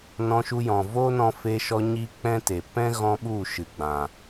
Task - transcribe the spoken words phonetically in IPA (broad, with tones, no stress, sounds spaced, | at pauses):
n ɔ̃˧ ʃ u˧ j ɔ̃˨ v o˦ n ɔ̃˧ f e˧ ʃ ɔ˧ ɲ iː˦ k͡p ɛ̃˦ t e˨ p ɛ̃˦ ɣ ɔ̃˦ ɓ u˦˨ ʃ ɨ˨ ɡ͡b ã˨